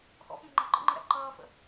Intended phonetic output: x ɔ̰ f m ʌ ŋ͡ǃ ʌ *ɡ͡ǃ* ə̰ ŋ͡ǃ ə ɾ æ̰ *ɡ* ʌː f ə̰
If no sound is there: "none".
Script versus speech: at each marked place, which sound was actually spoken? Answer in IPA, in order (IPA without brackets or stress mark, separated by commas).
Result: ɡ͡ǃ, ǃ